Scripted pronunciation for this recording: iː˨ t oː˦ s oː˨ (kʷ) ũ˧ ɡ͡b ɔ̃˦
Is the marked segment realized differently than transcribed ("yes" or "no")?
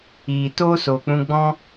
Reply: yes